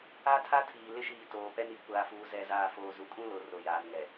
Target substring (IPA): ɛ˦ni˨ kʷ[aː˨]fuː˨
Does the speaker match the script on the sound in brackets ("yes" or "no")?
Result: yes